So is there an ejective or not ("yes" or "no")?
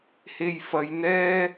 no